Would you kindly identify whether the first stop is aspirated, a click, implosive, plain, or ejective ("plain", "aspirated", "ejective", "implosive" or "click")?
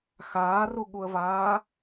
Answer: implosive